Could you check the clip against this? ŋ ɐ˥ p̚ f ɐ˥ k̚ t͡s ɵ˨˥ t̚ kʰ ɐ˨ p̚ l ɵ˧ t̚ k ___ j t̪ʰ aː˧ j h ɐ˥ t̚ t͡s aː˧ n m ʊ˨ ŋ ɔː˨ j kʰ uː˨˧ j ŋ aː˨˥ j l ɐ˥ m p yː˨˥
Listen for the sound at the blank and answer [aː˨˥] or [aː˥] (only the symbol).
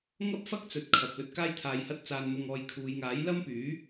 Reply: aː˥